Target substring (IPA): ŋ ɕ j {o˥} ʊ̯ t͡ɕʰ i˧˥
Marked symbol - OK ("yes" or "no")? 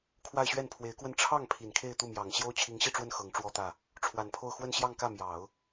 yes